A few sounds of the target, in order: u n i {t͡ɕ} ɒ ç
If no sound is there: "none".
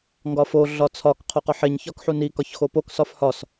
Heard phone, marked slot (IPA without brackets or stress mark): k